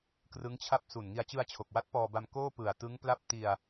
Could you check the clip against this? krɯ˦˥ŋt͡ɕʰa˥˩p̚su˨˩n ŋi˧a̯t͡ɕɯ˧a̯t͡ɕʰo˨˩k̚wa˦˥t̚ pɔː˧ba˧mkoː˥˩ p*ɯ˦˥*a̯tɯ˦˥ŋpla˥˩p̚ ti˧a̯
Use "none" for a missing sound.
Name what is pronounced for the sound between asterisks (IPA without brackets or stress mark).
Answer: ɯ˨˩